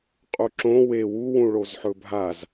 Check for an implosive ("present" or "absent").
absent